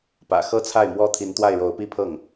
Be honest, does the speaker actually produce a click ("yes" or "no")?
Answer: no